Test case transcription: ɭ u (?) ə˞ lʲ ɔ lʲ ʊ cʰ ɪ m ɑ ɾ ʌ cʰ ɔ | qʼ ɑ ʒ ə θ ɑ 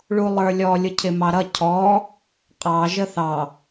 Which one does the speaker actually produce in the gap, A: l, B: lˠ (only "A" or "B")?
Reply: B